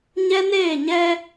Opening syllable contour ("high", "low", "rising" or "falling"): high